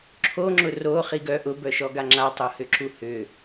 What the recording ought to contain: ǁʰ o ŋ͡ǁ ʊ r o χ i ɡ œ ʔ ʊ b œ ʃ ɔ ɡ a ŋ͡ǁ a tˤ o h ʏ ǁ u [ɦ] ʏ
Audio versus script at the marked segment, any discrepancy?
yes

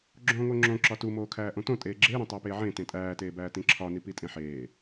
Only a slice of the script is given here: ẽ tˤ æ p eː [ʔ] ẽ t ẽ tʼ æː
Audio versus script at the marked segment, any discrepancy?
yes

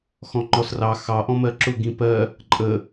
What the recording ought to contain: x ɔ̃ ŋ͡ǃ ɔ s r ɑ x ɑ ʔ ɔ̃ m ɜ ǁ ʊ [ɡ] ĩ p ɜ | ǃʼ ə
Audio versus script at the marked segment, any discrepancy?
no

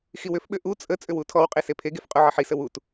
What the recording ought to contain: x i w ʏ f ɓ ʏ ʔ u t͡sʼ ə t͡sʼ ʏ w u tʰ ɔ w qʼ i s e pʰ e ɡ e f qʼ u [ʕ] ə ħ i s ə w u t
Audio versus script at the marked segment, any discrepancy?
no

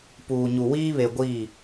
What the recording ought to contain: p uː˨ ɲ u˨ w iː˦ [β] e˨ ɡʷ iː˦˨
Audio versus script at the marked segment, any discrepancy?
no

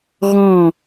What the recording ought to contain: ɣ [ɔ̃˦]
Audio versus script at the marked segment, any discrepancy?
yes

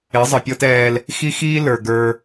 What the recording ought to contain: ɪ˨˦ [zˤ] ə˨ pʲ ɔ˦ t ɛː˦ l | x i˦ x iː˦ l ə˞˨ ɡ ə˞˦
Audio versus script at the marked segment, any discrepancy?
no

